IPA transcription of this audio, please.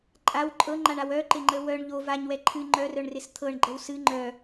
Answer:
ǃʼaw ǃʼɤŋ͡ǃaɳaw œǃɪŋ͡ǃə wœɳ ʎo vaɲwɛ ǃʰɨ ŋ͡ǃœrœɳrɪs t̪ʰɤɳɡ͡ǃəw sɨ ŋ͡ǃœ

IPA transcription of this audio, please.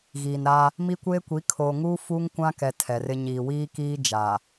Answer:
ɣiː˨nɾa˦ | mi˦kʷeː˦kʷi˨˦ kʰoː˨ŋuː˦ fu˦ŋkʷã˦kɛ˨ tʰɛ˨rɪ˦ ɲiː˨wiː˦ kiː˦ d͡ʒaː˨

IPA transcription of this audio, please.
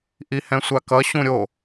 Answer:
ʔihɛ̃sʷakʌ ɕũɾʲo

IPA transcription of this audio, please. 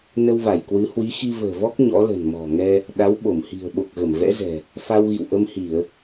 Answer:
nə˧wva˧˩jkwɨ˨˦ hwi˨˦xi˧və̤ː˨˩vɔ˦˥k̚ ɲɔ̰˧˥lə̤˨˩n mɔ̤˨˩ŋɛ˧ | ɗa˨˦wɓo˧˩mhi̤˨˩ə̯ ɓo˨˩k̚ɣə˧˩mvɛ̰˧˥ zɛ̤˨˩ | fa˧wɣḭ˧˨wʔə˧mhi˧˩˨ə̯

